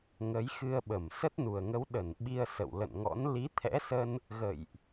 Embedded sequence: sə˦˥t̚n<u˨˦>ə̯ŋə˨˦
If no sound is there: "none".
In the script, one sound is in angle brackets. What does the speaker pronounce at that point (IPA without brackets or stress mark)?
u˨˩